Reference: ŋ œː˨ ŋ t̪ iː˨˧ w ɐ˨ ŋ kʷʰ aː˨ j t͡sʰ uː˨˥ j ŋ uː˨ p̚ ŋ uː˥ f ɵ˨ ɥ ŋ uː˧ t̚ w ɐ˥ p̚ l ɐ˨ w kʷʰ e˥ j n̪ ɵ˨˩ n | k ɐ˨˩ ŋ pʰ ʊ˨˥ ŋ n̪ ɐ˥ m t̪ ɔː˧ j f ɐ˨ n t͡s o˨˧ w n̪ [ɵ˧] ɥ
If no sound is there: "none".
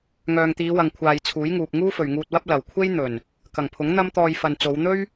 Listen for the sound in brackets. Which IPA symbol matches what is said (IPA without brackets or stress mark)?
ɵ˥